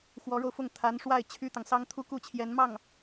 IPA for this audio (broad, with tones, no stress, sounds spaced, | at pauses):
x w ɔ˧˥ ɻ o˧ ʊ̯ f ʊ˥˩ ŋ t̪ʰ a˧˥ n ʂ w a˥˩ ɪ̯ t͡ɕʰ y˥ t̪ ɑ˨ ŋ s ɑ˥ ŋ t̪ʰ u˥ k u˥˩ t͡ɕʰ j ɛ˧˥ n m ɑ˥˩ ŋ